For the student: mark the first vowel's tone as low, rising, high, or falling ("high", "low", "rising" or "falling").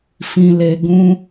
high